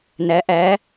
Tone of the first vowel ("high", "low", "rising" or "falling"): rising